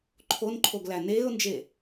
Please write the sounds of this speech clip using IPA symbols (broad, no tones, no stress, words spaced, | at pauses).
ǃʰonǃʰoɡlæ neːʊ̯nd͡ʒe